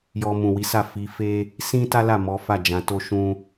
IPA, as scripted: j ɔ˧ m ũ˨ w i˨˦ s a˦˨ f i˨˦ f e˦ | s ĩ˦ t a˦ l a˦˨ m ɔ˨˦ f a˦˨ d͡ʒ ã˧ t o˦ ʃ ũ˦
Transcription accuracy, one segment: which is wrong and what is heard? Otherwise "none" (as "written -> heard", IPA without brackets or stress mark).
none